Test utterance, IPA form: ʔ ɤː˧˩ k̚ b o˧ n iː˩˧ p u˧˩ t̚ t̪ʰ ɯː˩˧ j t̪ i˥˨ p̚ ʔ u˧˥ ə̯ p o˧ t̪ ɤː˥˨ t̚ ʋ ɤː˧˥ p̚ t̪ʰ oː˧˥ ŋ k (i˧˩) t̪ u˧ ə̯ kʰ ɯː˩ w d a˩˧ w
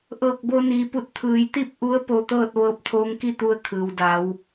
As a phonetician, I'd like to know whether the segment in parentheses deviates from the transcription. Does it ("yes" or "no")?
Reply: yes